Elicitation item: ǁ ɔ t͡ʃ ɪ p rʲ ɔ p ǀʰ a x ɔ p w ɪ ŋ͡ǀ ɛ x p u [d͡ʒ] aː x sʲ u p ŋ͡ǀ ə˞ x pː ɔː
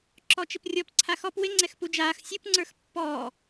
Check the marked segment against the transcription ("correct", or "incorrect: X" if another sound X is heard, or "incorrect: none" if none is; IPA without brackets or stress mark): correct